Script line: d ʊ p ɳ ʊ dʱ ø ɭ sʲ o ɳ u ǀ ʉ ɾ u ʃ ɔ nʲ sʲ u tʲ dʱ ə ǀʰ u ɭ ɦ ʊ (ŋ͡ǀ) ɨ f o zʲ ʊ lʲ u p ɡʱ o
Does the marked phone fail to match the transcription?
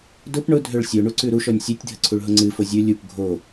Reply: no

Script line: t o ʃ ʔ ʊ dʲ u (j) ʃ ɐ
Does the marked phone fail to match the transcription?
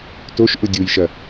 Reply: no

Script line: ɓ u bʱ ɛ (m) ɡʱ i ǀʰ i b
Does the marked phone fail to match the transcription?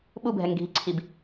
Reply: yes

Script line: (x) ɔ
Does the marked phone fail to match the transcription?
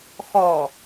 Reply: no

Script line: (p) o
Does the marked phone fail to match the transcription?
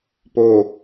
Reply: no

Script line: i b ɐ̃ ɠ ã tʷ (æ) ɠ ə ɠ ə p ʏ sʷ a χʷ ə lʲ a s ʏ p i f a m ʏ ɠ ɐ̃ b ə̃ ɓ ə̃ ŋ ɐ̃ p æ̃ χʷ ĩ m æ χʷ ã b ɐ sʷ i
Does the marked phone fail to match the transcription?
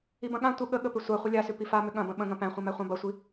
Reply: yes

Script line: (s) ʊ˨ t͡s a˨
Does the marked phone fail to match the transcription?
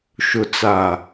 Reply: yes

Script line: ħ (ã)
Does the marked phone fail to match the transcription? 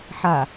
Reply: yes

